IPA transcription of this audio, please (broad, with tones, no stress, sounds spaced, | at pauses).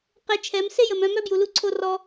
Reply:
q e˧ t͡ʃʰ ɛ˨˦ m s e˦ j ə˨ m œ̃˧ m œ˦ b j u˨ l u˦ ǀʰ o˦ r ɔ˧